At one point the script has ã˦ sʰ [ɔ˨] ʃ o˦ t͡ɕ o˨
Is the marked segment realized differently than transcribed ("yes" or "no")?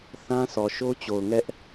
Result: no